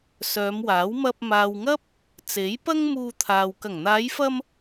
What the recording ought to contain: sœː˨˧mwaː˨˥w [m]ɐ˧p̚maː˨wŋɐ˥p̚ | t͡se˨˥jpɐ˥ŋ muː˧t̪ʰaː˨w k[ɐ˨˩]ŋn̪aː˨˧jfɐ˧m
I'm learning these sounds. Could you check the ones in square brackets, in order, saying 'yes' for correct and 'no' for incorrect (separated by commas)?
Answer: yes, yes